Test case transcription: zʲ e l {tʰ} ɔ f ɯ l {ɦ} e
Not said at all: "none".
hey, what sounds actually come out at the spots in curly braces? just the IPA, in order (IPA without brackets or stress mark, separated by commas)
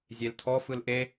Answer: tʰ, ʔ